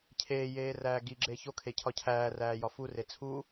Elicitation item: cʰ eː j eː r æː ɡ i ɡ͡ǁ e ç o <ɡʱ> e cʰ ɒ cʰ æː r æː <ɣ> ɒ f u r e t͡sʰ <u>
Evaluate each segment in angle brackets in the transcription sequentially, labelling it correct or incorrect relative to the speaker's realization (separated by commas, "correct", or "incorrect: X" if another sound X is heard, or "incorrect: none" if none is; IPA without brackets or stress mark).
incorrect: kʰ, incorrect: j, correct